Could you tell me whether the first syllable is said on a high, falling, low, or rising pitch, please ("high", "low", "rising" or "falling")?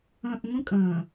low